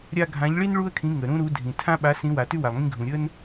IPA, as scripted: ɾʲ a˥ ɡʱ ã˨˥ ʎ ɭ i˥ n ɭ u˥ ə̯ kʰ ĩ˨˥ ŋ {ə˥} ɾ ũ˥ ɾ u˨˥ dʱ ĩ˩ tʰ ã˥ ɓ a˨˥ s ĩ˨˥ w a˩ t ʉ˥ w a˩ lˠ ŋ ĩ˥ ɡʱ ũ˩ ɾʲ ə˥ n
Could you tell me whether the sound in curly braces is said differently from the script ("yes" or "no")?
yes